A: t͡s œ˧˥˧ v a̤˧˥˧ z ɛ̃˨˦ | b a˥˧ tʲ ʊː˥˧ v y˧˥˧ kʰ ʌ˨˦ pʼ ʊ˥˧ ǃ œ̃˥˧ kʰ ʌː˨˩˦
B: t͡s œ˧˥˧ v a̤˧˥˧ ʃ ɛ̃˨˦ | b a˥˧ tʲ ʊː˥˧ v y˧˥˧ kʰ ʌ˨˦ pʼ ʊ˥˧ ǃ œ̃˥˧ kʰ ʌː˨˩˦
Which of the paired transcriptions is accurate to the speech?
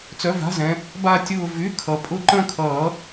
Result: A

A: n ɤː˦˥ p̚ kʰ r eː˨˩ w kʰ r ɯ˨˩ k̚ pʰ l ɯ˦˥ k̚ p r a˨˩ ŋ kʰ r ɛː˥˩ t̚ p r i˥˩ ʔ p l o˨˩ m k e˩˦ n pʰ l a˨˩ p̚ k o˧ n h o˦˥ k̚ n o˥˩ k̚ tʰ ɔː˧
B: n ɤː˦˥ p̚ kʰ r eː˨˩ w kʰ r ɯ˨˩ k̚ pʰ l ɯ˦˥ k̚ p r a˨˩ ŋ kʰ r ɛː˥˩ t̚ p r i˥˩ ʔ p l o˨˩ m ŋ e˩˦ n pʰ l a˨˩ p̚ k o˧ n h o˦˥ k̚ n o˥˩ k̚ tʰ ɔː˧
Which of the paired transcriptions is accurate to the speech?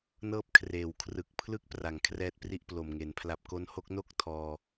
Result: B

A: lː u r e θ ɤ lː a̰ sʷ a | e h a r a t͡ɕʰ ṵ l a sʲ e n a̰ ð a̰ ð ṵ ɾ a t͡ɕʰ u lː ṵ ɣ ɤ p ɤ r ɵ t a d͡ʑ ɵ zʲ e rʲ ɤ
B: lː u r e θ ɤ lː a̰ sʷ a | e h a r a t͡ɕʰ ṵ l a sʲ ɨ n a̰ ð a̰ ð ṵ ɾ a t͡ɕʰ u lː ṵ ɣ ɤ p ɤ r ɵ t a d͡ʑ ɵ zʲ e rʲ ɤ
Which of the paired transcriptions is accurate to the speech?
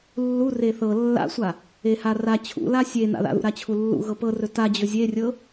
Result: A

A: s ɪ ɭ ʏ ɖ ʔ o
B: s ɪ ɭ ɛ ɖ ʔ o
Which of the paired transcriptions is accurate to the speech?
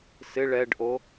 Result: B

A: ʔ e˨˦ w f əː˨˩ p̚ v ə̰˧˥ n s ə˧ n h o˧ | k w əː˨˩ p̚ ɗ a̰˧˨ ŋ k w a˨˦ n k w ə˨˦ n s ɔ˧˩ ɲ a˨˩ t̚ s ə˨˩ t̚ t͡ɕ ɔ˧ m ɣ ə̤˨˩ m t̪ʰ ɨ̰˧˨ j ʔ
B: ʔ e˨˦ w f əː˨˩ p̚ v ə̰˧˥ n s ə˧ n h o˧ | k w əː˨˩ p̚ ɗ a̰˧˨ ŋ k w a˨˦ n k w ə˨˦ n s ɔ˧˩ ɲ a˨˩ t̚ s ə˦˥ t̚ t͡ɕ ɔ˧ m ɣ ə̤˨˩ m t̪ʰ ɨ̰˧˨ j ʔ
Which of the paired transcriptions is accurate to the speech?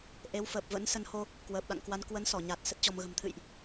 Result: B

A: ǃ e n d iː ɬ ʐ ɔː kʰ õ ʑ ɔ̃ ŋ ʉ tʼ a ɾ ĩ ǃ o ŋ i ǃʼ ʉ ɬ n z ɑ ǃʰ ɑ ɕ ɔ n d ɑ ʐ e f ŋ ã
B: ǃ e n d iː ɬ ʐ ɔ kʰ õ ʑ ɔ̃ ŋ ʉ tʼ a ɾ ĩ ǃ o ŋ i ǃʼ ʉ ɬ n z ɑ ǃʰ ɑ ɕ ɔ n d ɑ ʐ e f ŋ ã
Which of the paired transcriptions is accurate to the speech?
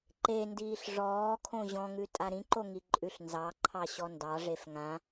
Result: A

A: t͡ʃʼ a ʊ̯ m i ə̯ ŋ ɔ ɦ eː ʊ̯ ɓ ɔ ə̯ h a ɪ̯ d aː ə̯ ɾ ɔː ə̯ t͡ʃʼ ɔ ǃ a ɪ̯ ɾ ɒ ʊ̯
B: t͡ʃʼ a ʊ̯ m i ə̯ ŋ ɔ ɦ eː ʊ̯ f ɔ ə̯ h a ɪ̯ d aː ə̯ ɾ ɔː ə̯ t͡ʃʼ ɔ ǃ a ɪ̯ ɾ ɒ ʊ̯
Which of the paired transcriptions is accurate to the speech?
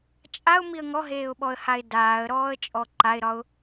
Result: A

